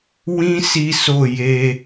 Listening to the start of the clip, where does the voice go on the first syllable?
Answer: high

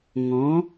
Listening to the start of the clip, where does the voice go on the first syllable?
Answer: rising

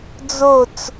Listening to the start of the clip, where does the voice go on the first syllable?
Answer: falling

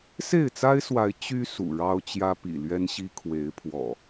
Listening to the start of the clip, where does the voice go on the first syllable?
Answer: falling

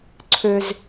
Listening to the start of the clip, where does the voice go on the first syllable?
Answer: low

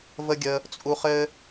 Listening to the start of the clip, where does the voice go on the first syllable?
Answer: high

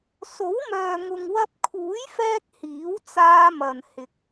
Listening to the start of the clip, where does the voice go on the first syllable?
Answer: rising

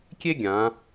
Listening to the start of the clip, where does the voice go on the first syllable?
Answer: high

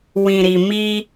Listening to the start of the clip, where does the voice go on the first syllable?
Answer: low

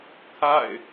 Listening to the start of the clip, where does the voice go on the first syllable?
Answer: falling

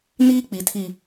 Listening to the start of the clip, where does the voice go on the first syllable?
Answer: high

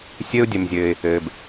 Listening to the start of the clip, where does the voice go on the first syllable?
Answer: high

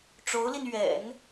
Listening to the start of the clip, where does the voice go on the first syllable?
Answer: rising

